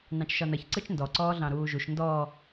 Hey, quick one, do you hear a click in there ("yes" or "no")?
yes